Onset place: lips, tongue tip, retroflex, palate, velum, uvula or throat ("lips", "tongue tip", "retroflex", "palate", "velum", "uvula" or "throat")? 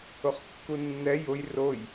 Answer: uvula